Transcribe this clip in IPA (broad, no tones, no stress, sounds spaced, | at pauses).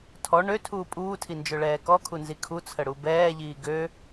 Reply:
tʰ ɔ ɳ ø tʰ uː pʼ uː tʰ i n d͡ʒ ø ɭ ɛː k ɔ kʰ u n z i kʰ u t͡sʰ ə ɽ u b ɛː ʎ iː ɡ ø